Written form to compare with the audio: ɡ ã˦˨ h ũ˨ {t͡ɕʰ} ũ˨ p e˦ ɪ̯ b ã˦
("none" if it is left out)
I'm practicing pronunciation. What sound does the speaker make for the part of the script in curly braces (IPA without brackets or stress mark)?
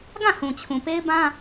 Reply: t͡ɕʰ